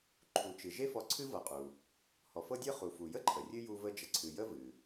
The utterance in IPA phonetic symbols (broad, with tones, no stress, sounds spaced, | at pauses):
ǃʰ u˩ t͡ʃ ɨ˩ ʒ e˦ f ɔ˨ ǀʰ ɨ˦ v ɤ˨ qʼ u˩ | h ɔ˩ f ɤ˥ dʲ ɤ˥ χ u˩ f u˩ j ə˥ ǃʰ ə˩ rʲ ɨ˥ j u˦ v ə˦ d͡ʒ ə˨ ǀʰ ɨ˨ j ə˥ v ɨ˩